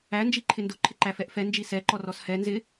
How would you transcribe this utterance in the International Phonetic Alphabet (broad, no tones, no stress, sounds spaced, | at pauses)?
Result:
æ n d͡ʒ i ǃʰ ɪ n d ʊ ǃʰ ɪ ǃ æ f ɛ ʔ f ɛ n d͡ʒ i s ɛ ǃ ɔ r ɔ s h ɛ n z ɪ